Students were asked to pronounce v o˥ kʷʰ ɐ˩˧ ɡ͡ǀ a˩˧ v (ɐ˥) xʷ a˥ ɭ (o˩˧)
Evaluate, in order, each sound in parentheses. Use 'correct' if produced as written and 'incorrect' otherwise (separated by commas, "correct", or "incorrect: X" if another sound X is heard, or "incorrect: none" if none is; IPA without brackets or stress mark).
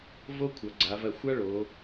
incorrect: ɐ˧˩, correct